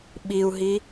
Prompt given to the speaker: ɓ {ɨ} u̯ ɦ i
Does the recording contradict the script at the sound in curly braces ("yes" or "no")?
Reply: yes